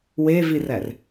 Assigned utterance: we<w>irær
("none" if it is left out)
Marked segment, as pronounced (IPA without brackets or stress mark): v